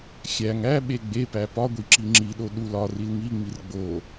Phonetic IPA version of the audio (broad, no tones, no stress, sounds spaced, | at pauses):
xʲ æ ŋ æ ɓ e ɡ͡b e p æ p ɒ ɡʷ i ǁ i ŋ͡ǁ i ɗ o ɗ u l ɒ r i l ŋ i ŋ͡m i r ɡ͡b o